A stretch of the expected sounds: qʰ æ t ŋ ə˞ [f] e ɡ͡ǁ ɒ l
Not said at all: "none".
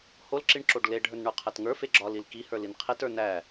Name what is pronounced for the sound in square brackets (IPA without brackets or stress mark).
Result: f